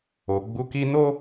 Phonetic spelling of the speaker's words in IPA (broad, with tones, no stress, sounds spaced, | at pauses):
o˨ ɡ͡b u˧ k i˦ n o˦